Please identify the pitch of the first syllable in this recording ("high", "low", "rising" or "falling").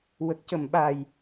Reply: low